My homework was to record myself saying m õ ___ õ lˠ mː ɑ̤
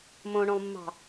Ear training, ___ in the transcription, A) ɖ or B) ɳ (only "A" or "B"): B